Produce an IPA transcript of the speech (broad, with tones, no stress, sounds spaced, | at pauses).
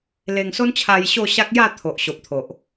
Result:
l e˧ ŋ s o˦ n t͡ɕʰ a˧ j ɕ o˥˧ ɕ a˦ k̚ j a˥˧ t̪ʰ o˨ ʔ ɕ o˨ p̚ t̪ʰ o˨ ʔ